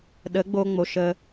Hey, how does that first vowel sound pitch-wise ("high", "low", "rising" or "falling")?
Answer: rising